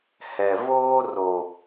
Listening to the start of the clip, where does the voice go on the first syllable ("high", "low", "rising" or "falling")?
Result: low